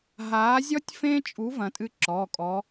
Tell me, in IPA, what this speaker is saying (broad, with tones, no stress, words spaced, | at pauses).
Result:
ɦaː˨˦zʲɔ˦tʲfẽ˦t͡ʃʼu˨˦ vɐ̃˨˦tʼɨ˦ǁɔː˩˧˩kʼɔː˨˦